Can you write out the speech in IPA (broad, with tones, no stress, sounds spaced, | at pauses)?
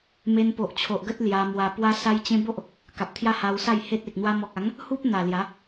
m e˧ n p o˨ ʔ t͡ɕʰ o˨ ʔ ɡ ə˦ t̚ l j a˧ m w a˧ p w a˦ s a˦ j t͡ɕ ẽ˦ b o˦ ʔ | k a˨ p̚ t̪ʰ j a˦ h a˧ w s a˥˧ j h e˦ t̚ e˨ k̚ n̪ w a˦ m ɔ˨ k̚ a˨˦ ŋ | h u˦ p̚ n̪ a˨˩ l j a˨˦